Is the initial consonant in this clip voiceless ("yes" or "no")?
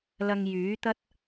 no